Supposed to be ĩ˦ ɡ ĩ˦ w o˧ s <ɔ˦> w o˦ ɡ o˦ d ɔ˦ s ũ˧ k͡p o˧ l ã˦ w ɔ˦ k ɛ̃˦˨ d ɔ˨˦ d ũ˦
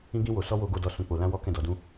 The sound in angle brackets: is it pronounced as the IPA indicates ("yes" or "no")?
yes